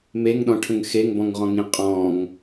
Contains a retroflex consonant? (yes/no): yes